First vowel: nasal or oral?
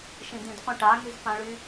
nasal